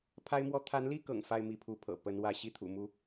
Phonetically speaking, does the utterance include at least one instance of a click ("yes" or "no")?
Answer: no